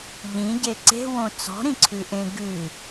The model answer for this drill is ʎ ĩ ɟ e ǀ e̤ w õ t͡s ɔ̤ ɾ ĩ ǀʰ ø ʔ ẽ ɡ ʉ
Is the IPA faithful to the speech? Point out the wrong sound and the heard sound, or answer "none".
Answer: ø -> ʉ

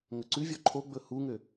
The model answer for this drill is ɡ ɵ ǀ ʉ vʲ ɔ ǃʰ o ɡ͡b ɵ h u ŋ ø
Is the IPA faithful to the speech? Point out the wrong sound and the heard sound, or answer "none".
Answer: ɡ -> ŋ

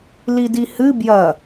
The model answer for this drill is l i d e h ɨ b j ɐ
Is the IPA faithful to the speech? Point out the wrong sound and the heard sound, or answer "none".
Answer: e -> i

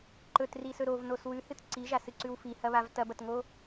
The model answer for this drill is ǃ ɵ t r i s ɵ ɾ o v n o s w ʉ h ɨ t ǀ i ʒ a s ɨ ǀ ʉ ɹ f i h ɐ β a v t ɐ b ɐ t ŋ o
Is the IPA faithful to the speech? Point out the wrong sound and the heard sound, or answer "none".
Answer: ɹ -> w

